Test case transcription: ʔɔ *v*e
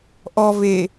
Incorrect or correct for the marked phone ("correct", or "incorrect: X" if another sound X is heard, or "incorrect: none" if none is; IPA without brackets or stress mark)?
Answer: correct